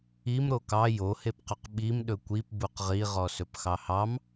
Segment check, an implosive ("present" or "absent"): present